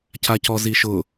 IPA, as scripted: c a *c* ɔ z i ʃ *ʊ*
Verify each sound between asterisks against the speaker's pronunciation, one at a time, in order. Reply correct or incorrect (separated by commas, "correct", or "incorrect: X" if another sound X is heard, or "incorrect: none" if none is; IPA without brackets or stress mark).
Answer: correct, correct